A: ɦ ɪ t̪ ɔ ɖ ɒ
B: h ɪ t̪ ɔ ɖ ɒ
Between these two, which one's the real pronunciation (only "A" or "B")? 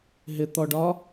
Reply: A